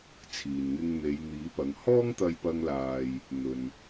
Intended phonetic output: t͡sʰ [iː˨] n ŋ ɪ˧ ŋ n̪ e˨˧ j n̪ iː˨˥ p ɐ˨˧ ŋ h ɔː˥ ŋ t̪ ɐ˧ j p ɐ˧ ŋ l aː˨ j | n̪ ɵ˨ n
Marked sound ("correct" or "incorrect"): correct